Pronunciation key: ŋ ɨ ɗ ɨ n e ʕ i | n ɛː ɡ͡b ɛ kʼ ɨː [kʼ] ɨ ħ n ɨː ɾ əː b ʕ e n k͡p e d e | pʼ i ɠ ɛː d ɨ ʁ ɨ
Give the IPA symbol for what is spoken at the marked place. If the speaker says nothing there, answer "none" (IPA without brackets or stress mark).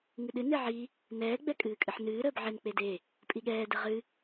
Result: kʼ